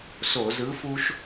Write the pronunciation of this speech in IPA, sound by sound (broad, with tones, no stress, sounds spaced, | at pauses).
s o˧˩˧ z ɯ˨˥ f u˦ ʃ